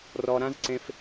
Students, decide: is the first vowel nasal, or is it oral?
oral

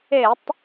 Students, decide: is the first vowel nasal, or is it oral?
oral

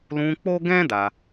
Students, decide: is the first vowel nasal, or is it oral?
nasal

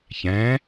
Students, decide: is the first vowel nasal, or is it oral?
nasal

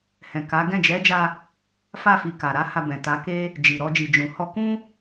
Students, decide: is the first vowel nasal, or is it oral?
nasal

